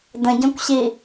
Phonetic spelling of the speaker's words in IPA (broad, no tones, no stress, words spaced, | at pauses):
də̃ɟɔ̃kʷɕi